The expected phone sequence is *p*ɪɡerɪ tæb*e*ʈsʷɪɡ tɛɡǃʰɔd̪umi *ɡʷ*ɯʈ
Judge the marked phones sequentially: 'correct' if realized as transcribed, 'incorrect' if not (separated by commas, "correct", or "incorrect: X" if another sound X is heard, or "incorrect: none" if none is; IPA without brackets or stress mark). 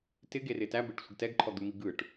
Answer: incorrect: t, correct, incorrect: ɡ